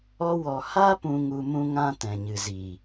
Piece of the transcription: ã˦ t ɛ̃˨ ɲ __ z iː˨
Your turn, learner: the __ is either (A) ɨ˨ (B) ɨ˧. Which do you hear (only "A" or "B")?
A